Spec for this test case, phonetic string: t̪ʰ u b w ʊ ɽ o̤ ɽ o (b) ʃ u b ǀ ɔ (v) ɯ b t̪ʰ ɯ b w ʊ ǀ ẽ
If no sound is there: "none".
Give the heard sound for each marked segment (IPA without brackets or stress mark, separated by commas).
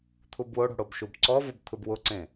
b, v